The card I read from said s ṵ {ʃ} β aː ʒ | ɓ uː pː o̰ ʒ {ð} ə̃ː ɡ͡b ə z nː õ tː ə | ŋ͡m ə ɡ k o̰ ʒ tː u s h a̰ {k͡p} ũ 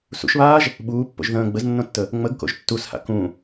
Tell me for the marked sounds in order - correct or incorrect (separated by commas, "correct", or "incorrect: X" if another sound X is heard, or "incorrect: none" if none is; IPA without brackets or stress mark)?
correct, correct, incorrect: k